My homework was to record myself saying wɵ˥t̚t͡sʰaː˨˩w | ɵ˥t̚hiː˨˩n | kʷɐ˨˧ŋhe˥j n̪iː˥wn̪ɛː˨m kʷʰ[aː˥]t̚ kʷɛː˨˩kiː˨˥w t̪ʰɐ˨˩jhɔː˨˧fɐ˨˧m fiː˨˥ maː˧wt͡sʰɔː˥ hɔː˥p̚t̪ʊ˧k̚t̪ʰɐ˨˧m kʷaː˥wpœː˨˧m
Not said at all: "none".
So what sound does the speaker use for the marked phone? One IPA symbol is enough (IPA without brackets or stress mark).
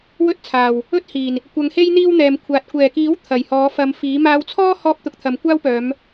aː˨